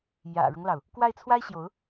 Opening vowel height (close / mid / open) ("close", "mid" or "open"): open